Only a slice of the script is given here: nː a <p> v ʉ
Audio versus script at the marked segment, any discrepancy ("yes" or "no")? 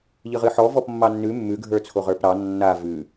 yes